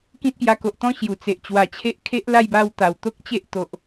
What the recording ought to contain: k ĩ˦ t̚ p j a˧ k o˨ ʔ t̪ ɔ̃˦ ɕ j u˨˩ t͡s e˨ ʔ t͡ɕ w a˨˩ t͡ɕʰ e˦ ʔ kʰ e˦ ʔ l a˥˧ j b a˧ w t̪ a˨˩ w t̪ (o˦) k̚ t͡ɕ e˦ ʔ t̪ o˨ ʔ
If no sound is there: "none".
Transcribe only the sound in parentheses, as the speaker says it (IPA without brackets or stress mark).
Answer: o˦